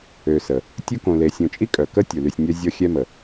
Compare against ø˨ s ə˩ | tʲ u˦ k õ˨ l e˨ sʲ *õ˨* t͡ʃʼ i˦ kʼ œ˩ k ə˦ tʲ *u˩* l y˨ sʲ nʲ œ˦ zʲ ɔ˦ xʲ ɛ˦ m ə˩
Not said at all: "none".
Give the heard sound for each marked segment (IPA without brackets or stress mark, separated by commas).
õ˨, u˩